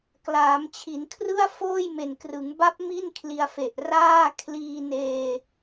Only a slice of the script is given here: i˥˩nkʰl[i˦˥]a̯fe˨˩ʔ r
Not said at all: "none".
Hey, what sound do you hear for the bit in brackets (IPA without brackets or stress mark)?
i˧